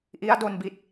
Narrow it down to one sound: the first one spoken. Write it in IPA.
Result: ʔ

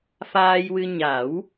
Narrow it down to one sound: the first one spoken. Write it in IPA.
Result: f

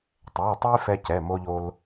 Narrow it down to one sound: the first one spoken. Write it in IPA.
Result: tˤ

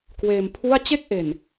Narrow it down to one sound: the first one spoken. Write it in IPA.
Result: k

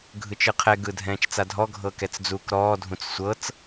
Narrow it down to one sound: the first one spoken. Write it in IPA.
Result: ɡʱ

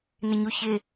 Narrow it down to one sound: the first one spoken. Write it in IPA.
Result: n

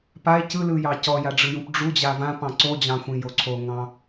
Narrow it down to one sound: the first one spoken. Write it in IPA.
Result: p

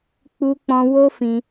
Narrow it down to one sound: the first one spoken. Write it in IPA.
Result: k͡p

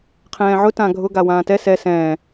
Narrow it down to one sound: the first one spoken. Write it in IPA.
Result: qʰ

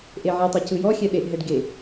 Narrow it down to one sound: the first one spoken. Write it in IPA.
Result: ʔ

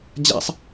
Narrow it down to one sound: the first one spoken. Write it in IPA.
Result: d͡ʑ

